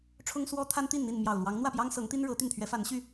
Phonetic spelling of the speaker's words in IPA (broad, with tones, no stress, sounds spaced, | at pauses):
ʈ͡ʂʰ ʊ˦ ŋ s w ɔ˦ t̪ʰ a˦ n t̪ i˥˨ n n̪ i˥˨ n m j ɑ˨˩ ʊ̯ l w ɑ˨˦ ŋ n̪ w ä˥˨ p j ɑ˦ ŋ s ɤ˨˦ ŋ t̪ i˦ n ɻ ɤ˨˦ t̪ y˥˨ n t̪ʰ ɥ ɛ˨˦ f a˨˦ n ɕ y˥˨